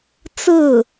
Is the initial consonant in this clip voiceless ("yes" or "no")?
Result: yes